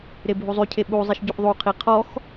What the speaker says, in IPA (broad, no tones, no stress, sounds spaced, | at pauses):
ɾ e bʱ u zˤ y cʰ e ɓ u zˤ i ʃ ɟ u ʔ ðˤ u qʰ i qʰ ɔ x